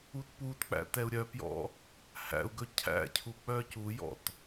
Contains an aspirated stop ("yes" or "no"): yes